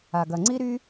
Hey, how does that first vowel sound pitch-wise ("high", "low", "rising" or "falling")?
low